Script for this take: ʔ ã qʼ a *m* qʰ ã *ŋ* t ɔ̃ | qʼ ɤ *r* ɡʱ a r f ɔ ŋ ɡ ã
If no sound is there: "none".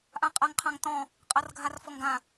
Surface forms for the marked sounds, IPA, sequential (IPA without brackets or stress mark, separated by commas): ŋ, ŋ, r